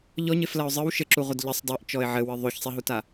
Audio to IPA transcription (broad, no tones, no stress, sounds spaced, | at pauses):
ʎ ɔ ɲ e f l ɐ ʊ̯ zˤ ɨ w ʃ ɘ ǁ u ʁʷ ɐ d ʎ ɘ sˤ dˤ o ʔ t͡ʃ ɔ ɪ̯ ʕ ɘ w ɨ ðˤ o ç sˤ e ɦ u t a